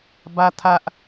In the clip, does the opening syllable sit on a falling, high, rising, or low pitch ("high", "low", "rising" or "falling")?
high